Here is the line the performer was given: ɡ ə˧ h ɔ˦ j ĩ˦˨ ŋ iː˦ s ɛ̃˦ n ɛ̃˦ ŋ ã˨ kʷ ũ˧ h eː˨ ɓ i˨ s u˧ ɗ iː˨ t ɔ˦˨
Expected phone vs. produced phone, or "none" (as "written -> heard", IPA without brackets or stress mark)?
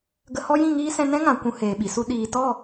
none